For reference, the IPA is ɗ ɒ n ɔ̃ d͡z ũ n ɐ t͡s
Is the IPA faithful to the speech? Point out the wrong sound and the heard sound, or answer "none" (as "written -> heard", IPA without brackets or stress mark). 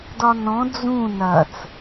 ɗ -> d